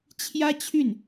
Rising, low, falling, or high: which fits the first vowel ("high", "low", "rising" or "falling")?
high